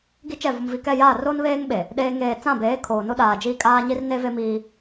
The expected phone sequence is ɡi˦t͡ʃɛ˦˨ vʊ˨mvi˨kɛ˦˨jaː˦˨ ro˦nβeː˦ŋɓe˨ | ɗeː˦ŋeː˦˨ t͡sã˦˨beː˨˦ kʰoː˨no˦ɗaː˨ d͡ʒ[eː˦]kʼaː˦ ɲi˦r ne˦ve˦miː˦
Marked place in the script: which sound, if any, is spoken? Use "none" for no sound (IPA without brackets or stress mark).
iː˦